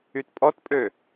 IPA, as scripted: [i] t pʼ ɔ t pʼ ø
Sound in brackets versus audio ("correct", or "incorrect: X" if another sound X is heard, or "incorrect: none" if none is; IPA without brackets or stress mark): incorrect: y